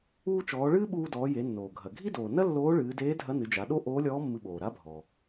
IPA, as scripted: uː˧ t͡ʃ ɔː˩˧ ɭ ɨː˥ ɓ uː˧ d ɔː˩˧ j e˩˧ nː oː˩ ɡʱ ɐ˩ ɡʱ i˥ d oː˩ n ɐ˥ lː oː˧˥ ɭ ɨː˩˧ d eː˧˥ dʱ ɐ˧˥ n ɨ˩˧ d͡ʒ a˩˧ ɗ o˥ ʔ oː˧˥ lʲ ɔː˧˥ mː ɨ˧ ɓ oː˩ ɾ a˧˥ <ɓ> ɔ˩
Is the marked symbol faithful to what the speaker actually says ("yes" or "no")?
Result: no